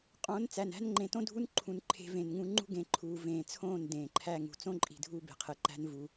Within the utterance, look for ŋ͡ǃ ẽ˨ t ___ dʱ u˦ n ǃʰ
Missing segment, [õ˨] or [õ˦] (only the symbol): õ˦